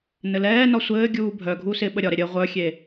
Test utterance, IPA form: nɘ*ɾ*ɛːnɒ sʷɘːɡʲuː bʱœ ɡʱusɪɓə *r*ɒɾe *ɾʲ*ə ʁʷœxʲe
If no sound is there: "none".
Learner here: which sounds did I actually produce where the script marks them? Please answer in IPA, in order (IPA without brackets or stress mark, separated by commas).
l, ɾʲ, ɾʲ